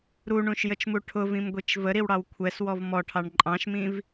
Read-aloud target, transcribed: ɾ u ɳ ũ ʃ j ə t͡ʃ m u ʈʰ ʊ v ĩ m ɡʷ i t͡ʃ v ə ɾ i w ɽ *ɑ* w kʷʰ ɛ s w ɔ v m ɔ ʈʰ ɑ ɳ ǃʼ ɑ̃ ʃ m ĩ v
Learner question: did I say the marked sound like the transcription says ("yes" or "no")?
yes